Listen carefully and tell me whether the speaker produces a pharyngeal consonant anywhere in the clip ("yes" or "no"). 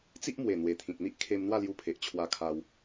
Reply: no